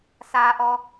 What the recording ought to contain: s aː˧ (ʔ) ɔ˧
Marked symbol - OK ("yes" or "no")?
yes